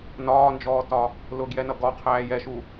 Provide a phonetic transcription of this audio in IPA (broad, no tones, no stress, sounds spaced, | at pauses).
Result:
n ɒː n d͡ʒ ɔː t ɒ | l ʊ ɡ j ɛ n ʌ ɡ ɔ qʰ æː j ɛ ʃ u